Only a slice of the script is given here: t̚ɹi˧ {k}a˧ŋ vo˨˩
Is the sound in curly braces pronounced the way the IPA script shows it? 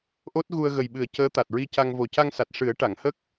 no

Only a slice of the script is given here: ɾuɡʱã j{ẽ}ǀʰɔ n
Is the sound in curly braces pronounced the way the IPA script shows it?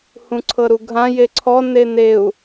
no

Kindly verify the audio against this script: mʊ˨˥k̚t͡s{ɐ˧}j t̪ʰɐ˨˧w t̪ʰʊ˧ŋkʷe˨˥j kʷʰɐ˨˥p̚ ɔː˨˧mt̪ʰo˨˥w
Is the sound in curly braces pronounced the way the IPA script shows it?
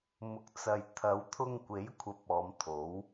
no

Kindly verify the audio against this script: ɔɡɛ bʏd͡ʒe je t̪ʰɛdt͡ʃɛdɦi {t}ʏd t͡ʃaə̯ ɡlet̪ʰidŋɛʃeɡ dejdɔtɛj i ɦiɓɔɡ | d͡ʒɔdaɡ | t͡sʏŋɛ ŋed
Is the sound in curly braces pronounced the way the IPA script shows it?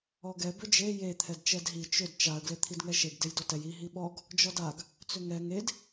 no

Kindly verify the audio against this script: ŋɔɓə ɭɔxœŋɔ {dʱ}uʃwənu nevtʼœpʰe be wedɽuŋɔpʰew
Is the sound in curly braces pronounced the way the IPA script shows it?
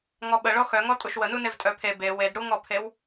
no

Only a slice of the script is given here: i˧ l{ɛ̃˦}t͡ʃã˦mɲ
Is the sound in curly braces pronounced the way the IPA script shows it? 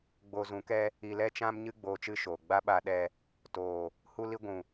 no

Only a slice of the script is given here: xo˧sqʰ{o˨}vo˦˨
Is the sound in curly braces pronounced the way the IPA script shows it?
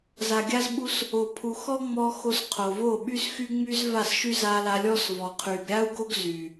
yes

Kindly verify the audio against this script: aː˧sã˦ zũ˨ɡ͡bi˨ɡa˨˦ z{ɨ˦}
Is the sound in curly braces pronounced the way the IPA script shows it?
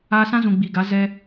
no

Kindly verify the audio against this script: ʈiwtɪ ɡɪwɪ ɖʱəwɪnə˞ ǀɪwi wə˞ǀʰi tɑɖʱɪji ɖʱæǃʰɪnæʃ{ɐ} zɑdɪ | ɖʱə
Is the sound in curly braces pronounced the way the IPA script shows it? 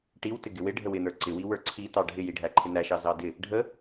no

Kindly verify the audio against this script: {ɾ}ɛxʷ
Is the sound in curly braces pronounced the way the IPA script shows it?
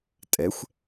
no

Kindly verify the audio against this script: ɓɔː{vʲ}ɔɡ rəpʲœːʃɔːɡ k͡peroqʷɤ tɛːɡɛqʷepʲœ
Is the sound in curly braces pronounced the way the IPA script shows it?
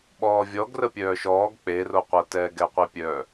yes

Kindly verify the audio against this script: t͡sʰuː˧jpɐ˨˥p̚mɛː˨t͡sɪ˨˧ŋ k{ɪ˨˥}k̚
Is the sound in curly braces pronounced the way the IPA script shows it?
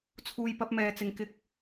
yes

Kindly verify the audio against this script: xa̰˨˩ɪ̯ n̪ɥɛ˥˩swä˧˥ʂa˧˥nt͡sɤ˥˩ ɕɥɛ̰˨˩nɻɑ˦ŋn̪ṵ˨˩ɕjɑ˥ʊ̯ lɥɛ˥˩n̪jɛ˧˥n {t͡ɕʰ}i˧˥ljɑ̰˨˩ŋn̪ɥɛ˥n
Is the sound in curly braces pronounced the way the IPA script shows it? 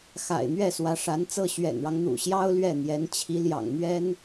yes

